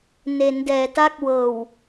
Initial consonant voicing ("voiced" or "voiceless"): voiced